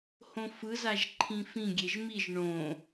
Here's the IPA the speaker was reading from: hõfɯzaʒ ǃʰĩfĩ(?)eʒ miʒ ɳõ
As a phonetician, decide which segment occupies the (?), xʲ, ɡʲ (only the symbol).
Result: ɡʲ